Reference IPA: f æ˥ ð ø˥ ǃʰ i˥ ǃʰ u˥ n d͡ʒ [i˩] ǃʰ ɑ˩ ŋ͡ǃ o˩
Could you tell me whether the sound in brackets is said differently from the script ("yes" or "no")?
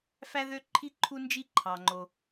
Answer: yes